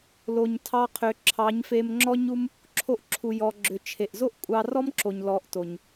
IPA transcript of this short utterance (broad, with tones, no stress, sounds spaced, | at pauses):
l o˨ ɲ tʰ ɑ˧ qʰ ʏ˨ ǁʰ ɑ˨˦ ɲ f e˧ m ŋ͡ǁ ɔ˦ ɲ u˦ m | ǁʰ o˧ ʔ ǁʰ u˨ j ɔ˨ ɡ͡ǁ ʏ˨ t͡ʃʰ e˨ ʔ z o˦ ʔ kʷʼ ɑ˧ r ɔ˦ m ǁ o˨ ɲ l ɔ˨˦ ʔ t o˨ ɲ